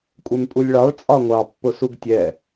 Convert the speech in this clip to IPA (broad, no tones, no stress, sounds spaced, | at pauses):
kʷʼ ɛ m pʼ u lʲ ɭ ɑ ɭ t͡sʼ ɒ ŋʷ ɑ pː ʊ s u ɡ tʲ ɛ